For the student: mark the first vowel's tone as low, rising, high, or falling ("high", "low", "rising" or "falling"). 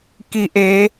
low